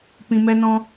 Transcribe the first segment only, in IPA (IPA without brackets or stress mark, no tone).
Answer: p